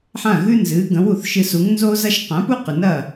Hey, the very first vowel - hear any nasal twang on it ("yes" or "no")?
yes